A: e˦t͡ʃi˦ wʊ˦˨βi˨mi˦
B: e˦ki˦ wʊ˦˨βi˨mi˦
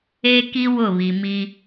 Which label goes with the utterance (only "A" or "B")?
B